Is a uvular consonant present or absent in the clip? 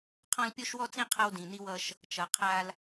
present